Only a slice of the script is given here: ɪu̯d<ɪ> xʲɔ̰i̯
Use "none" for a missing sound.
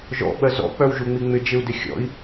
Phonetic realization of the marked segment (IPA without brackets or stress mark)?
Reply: ɪ